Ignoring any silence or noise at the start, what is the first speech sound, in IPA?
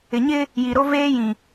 ɪ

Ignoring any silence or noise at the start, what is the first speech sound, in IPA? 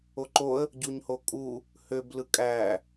o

